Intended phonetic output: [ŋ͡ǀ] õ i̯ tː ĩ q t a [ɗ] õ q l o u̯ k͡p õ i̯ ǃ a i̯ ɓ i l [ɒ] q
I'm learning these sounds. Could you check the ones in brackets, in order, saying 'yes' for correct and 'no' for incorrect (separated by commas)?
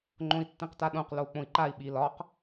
no, yes, yes